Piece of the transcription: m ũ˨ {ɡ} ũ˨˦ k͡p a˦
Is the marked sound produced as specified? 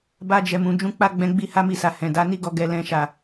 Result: no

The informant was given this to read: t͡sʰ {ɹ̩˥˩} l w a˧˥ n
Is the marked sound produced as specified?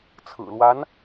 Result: no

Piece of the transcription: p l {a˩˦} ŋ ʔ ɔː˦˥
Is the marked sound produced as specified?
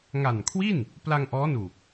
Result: no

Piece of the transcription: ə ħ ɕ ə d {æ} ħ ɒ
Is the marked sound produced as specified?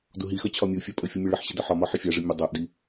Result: no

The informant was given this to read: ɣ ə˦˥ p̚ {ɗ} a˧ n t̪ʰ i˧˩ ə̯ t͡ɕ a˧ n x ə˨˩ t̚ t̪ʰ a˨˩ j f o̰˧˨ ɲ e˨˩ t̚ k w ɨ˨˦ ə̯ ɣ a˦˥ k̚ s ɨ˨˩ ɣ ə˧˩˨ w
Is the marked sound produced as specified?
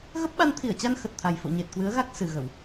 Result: no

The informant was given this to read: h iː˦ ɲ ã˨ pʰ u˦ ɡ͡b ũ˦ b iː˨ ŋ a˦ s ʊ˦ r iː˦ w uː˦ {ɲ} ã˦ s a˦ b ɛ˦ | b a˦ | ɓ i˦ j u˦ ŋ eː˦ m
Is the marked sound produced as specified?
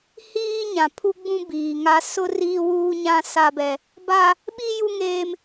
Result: yes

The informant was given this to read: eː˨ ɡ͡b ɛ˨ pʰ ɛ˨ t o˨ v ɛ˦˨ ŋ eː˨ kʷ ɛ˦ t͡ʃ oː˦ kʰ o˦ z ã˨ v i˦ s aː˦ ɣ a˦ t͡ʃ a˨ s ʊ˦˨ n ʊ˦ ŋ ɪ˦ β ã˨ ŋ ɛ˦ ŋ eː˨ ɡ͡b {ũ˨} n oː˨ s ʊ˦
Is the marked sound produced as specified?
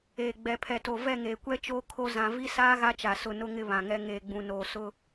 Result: yes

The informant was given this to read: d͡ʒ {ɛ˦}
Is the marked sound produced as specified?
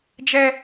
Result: yes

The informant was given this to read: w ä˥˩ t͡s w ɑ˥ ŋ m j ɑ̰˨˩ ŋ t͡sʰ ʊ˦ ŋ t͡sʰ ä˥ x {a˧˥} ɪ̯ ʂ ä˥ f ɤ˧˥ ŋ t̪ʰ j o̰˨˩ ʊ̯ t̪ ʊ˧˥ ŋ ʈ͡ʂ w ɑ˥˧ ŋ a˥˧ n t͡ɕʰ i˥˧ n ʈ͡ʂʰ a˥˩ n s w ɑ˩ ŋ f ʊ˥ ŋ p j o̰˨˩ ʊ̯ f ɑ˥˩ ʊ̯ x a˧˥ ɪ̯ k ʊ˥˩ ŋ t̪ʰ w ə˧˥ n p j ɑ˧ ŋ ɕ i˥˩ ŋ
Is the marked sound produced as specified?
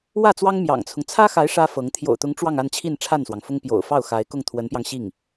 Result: yes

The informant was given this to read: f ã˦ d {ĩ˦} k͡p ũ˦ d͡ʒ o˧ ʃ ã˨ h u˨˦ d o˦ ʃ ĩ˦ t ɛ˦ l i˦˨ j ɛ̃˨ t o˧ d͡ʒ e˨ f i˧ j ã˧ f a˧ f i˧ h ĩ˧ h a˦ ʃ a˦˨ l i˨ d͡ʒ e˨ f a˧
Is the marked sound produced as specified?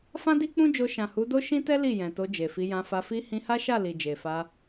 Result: no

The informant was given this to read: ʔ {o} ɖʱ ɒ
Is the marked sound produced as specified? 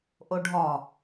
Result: yes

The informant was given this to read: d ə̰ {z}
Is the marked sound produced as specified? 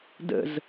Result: yes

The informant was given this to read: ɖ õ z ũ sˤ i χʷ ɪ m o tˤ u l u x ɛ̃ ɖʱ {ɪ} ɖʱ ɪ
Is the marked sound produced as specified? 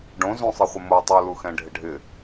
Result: yes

